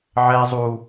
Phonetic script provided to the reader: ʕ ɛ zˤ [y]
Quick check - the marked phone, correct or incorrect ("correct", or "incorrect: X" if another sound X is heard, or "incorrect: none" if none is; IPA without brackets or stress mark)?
incorrect: u